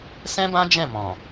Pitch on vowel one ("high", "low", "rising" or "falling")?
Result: high